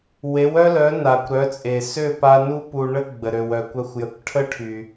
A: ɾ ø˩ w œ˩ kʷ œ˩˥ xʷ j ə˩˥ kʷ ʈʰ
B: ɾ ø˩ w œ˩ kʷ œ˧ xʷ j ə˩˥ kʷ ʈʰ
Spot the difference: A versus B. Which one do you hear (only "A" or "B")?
B